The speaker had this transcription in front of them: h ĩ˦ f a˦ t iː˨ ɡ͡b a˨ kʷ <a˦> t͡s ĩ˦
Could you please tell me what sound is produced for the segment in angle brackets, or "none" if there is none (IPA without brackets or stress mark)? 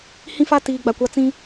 a˦